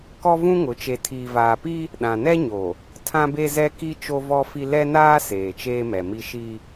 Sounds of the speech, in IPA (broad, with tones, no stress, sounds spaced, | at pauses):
k ɔ˦ v ũ˦ ŋ ʊ˨˦ t͡ʃ e˨ tʰ iː˨ v aː˨ p i˦ | ɗ ã˨ n ɛ˦ ɲ o˨ | tʰ ã˦ b e˦ z ɛ˦ k i˦ t͡ʃ o˦ v ɔ˦ f i˦ l ɛ˦ n aː˦ s eː˨ t͡ʃ eː˦ m ɛ˨ m i˦ ʃ i˦